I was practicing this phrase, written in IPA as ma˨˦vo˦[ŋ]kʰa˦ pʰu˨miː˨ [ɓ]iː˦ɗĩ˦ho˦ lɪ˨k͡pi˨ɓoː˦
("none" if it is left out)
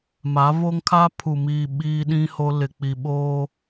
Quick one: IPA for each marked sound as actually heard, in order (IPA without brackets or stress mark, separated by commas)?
ŋ, ɓ